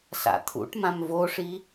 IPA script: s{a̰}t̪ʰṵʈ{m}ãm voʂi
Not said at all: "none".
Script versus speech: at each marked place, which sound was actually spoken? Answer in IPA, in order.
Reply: a̰, m

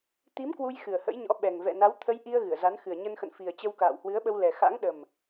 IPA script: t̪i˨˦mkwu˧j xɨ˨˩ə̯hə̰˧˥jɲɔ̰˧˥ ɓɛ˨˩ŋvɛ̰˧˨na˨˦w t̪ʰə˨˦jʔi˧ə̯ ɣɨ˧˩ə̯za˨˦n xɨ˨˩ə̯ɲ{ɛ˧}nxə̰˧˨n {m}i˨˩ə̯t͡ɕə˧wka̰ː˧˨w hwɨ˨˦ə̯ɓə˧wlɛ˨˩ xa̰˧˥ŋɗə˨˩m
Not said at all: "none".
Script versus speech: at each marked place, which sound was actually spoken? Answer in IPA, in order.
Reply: ə˧, f

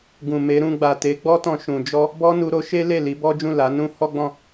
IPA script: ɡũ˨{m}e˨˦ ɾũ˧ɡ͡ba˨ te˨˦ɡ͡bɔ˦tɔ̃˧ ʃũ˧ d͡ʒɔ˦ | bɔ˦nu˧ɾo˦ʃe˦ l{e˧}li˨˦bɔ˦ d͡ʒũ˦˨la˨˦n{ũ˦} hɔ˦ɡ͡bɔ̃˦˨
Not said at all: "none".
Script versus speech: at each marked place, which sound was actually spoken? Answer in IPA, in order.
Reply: m, e˦˨, ũ˦

